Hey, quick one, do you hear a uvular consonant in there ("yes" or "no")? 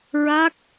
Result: no